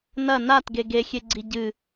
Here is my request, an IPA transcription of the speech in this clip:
nɐ natɡe ɡexʲeɡ͡ǀi ɟɨ

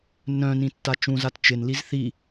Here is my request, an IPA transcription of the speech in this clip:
nœ̃nĩ tːat͡ʃũzat t͡ʃɪnliz θi

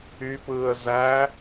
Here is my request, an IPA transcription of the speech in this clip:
ypɯːə̯ zæ

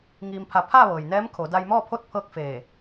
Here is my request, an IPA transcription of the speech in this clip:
ŋiː˧mpʰa˧ pʰa˥˨ ʋɤː˩jnɛː˧˥mkʰo˩˧ da˧jmɔː˥˨pʰo˥˨t̚ pʰɤː˥˨k̚feː˧˩

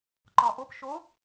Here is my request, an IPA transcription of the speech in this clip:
ǃɒʔop ʃo

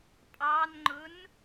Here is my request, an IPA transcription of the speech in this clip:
pʼɑnŋ͡ǃʊn

